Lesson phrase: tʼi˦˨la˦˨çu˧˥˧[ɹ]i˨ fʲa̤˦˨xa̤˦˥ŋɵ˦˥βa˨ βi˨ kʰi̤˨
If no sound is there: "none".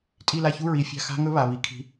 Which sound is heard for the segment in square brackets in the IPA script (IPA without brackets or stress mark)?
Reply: ɹ